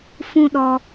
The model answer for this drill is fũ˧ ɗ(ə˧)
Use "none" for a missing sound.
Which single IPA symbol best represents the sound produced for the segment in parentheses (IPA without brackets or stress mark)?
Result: ɔ˧